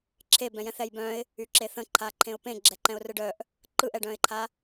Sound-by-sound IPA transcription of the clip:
ǁʰ e b ɛ̃ j ɛ̃ θ ɛ j b œ̃ ɪ̯ | y ǁ e θ ə̃ ǃʰ a ǃʰ ẽ ʊ̯ p ẽ ɡ͡ǁ ɛ ǃ ɛ̃ ʊ̯ r ɯ ɖ œ ʔ | ǃ ɯ ʔ ɛ ɖ œ̃ ɪ̯ ǃʰ a

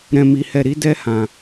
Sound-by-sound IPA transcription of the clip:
ɾ ɛ̃˧ m i˧ h ɛ˧ ɾ i˦ d ɛ˦ h ã˧

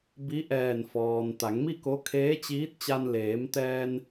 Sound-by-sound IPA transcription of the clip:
b i˧˥ ʔ ɛː˧˩ n f ɔː˩ n t̪ a˩˧ ŋ m i˥˨ k o˧˥ kʰ eː˧˥ t͡ɕ iː˧˥ t̚ t͡ɕ a˧ n l eː˩˧ m t̪ ɛː˧ n

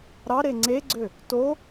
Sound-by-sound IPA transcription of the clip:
ɾ ɑ ɾ e ŋ͡ǀ e ɡ͡ǀ ø | t o

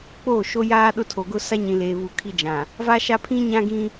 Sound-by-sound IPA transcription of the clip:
k͡p oː˦˨ ʃ o˦ j aː˦ ɗ ʊ˦˨ tʰ o˨ ɡ ʊ˦ s a˦ ɲ ĩ˨ l eː˨ β u˨ kʰ i˦ d͡ʒ ã˨ | v a˦ ʃ a˦ pʰ ĩ˦ ɲ ã˦ ɡ ĩ˦

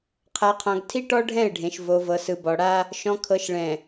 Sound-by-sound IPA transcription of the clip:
qʰ a˨ qʰ ɔ̃˨ ɡ tʰ i˦ ʈ ɔ˦ ɖʱ ɛ̃˦˨ ɪ̯ ɖʱ ẽ˨ ʃ v o˨ v ɤ˨ s ɯ˨ b ɔ˨ ɽ a˦ | ʃ ɔ̃˨ kʰ ɤ˨ ʃ ɭ ɛ̃˨

